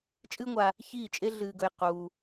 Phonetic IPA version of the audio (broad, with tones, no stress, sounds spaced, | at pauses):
t͡ʃʼ ɨː˦ ŋʷ a˧ | ç iː˦˨ t͡ʃʼ e˦ ɮ ɨː˧ ɡ ɵ˧ j q uː˧